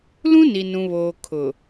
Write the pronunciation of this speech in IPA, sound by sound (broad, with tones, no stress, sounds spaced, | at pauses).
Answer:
l ũ˦ n i˨ n ũ˨ β oː˨ kʰ ʊ˨